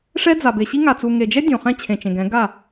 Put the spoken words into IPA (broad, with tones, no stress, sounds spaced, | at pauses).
ʂ ɛ˦ d͡z a˨ b e˨ ɕ i˦ ŋ a˨ t͡s u˨ ŋ e˨ d͡ʒ ɛ˦ dʲ õ˨ χ ɛ̃˦ t͡ɕʰ ẽ˨ t͡ʃ ẽ˨ ɡ ɛ̃˨˦ ɡ a˦˨